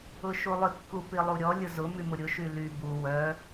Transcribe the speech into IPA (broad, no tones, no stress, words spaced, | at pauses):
ʊʃulˠʏ kːupilˠuɾʲɔ lʲʊzʊ mymʊɾʲʊ ʃyly bu wœ